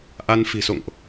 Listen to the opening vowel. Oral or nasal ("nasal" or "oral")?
oral